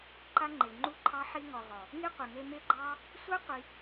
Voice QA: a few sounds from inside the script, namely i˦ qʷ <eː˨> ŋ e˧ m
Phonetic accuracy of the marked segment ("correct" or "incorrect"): incorrect